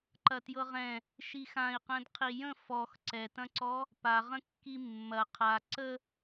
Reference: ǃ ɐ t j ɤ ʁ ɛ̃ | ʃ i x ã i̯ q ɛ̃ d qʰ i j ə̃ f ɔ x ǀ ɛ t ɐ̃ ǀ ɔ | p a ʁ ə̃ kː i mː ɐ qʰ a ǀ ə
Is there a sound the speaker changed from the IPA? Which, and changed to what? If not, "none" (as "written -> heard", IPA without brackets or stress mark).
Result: none